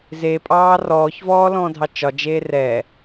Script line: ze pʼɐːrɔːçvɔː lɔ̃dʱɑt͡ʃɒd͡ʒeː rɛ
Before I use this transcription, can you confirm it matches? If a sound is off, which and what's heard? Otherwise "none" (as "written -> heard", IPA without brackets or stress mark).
ɐː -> ɑː